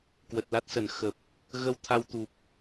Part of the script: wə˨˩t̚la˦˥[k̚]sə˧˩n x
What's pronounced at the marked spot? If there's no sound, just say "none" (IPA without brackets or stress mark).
t̚